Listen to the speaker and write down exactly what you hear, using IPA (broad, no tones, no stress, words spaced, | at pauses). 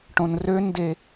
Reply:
ʈõnrønde